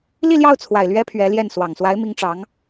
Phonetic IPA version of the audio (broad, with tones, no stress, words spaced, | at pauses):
li˥˧ljɑ˥˩ʊ̯t͡sʰwa˨˩ɪ̯ lɥɛ˥pʰɥɛ˧˥ljɛ˥˩n swɑ˨˩ŋswa˧˥ɪ̯mi˧˥ŋ ʈ͡ʂɑ˧˥ŋ